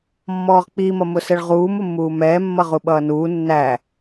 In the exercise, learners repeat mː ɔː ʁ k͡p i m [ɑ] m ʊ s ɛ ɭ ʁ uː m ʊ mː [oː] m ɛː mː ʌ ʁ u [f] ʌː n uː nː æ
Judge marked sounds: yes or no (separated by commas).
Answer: no, no, no